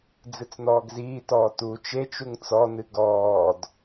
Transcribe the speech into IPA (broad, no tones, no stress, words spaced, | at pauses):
d͡zɨt͡sn̪ɔːɡziːtɔː tu t͡ʃet͡ʃuŋ t͡sɔnɨ ɡɔːd